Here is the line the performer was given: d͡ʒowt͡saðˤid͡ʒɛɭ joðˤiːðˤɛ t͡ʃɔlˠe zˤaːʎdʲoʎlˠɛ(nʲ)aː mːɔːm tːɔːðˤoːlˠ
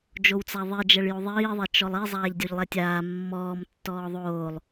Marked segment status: incorrect: tʲ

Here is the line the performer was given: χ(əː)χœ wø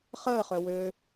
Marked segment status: correct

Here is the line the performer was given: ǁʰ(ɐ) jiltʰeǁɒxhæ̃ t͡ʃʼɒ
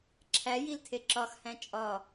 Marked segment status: incorrect: æ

